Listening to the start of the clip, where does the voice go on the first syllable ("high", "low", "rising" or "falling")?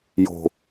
low